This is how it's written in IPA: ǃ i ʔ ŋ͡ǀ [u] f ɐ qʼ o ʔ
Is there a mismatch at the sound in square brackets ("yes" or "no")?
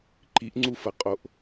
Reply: no